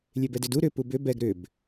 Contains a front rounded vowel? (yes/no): yes